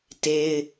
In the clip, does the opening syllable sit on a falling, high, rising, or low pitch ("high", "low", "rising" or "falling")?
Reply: high